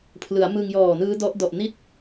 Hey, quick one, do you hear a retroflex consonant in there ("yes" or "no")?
no